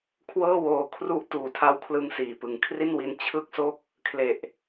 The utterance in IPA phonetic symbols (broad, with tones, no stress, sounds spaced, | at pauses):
kʰ w ɤː˥˩ w oː˧ kʰ r u˥˩ ʔ t uː˨˩ tʰ a˦˥ w kʰ l ɯ˧ ŋ s iː˨˩ p ɯ˨˩ ŋ kʰ r i˥˩ n w i˦˥ n t͡ɕʰ ɯ˥˩ k̚ s o˥˩ k̚ | kʰ l e˨˩ ʔ